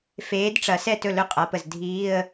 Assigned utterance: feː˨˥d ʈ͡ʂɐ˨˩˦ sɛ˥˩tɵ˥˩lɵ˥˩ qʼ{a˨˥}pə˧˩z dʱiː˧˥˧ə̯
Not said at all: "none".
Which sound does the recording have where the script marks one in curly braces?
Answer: a˨˥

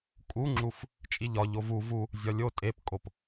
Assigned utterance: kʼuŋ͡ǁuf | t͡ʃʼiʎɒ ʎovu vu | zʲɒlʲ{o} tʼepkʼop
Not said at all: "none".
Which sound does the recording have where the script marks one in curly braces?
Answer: o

